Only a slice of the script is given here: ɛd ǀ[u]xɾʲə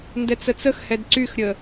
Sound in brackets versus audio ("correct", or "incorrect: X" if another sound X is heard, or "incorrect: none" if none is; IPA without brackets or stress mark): incorrect: y